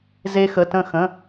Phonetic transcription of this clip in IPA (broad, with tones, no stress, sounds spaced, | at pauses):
z e˧ x ə˩˧˩ t ə̃˧˩ x ə̃˩˧˩